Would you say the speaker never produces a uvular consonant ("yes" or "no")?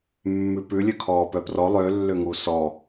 yes